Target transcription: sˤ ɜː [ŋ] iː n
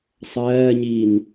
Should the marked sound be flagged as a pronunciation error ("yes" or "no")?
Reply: yes